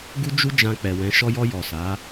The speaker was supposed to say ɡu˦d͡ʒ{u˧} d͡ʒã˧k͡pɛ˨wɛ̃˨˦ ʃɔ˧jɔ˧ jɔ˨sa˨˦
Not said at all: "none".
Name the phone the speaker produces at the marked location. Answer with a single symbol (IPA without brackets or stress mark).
u˦